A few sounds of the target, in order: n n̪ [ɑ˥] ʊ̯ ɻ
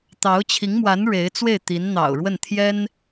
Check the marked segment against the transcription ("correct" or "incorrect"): incorrect